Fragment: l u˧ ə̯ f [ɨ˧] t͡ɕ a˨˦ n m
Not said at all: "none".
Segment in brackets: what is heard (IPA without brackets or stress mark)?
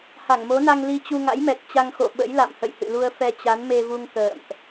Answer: ɛ˧